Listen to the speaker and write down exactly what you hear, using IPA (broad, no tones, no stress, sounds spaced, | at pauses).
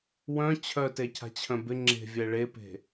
w œ̃ t͡ɕʰ œ t e cʰ a̤ t͡ɕʰ œ̃ b ɪ ŋ͡ǁ e̤ vʲ ɛ ɭ e p e̤